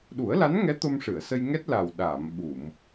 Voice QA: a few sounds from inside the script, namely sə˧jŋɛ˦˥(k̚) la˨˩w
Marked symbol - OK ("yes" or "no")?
no